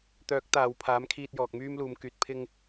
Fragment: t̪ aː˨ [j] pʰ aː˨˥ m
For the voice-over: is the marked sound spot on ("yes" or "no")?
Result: no